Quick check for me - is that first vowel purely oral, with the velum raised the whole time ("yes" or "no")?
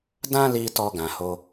no